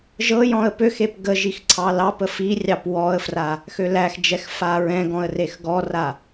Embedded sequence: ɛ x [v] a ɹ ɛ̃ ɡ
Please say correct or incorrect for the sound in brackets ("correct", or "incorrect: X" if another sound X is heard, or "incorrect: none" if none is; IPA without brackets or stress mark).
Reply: incorrect: f